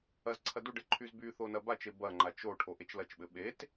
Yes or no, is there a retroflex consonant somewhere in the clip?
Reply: yes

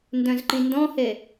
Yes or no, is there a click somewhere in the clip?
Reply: yes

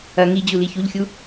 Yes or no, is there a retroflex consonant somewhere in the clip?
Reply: no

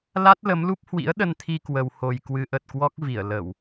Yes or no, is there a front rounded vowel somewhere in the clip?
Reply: no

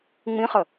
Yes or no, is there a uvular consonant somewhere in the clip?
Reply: yes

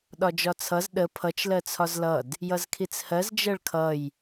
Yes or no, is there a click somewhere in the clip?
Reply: no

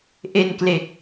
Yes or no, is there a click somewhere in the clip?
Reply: no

